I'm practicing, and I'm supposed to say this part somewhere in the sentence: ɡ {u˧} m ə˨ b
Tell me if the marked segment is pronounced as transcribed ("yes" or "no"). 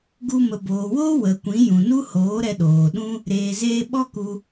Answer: yes